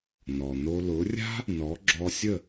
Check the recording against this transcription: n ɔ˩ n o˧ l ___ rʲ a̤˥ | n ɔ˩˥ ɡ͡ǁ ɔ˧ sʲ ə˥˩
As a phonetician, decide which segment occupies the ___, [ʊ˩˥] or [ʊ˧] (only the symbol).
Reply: ʊ˩˥